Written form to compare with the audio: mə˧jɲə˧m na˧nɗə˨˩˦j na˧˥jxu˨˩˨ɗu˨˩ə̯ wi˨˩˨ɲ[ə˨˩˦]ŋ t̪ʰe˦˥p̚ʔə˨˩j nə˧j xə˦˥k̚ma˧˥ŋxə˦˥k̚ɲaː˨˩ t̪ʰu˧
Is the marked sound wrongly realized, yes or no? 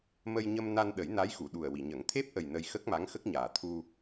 no